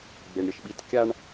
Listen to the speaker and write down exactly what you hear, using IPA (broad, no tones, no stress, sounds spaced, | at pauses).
ɡ͡b e ɳ ɾʲ ʌ ʃ ɓ i t kʲ a ɳ